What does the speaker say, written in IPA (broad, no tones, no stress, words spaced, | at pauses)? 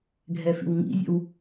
ɡʱɛfḭwŋḭzʲə̰w